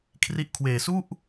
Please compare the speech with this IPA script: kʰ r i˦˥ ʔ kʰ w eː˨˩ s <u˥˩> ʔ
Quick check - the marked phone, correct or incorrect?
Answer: correct